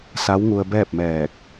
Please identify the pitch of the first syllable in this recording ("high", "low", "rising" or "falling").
rising